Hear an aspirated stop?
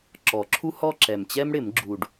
yes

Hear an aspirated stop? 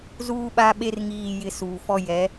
no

